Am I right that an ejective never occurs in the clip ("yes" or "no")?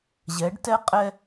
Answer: no